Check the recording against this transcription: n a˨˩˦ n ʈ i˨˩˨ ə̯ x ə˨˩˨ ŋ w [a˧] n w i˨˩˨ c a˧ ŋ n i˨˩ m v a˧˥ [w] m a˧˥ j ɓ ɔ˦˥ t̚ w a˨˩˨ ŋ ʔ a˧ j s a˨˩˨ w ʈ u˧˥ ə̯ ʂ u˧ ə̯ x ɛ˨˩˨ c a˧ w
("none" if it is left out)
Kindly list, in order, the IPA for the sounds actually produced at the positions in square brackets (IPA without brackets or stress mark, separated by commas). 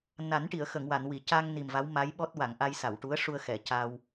a˨˩˨, w